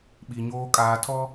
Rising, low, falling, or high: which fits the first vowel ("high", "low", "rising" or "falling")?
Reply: low